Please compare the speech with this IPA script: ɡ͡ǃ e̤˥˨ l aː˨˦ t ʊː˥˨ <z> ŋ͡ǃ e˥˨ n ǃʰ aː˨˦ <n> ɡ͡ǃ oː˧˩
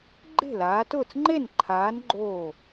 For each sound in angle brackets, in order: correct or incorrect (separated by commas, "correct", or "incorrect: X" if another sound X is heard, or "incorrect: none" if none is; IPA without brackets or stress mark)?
incorrect: t͡s, correct